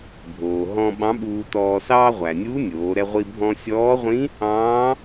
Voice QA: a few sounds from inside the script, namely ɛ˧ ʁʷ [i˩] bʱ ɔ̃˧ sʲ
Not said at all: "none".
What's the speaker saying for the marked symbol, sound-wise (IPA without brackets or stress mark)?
i˧